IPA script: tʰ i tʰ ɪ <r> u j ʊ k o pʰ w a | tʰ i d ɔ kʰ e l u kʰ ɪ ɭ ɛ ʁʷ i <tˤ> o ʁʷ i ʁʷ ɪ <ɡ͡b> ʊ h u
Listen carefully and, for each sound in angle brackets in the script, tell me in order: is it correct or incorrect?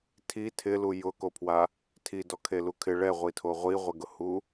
incorrect: l, incorrect: tʰ, incorrect: ɡ

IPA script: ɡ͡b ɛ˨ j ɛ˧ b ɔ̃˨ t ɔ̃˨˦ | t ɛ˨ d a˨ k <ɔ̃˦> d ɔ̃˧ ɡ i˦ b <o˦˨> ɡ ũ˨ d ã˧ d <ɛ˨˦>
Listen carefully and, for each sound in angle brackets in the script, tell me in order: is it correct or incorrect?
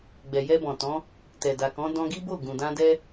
incorrect: ɔ̃˨˦, correct, incorrect: ɛ˦

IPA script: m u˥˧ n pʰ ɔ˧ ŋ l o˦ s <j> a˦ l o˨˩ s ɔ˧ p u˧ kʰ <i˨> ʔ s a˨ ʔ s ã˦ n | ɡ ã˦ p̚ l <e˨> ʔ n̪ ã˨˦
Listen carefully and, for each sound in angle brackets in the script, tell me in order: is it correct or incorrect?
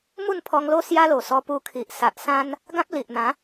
correct, correct, incorrect: i˨

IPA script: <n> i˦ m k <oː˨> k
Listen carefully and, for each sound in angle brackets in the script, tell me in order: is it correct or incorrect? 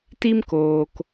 incorrect: t, correct

